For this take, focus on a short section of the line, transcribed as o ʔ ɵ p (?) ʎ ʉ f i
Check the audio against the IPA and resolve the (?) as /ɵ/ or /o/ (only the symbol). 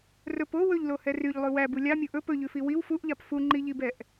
ɵ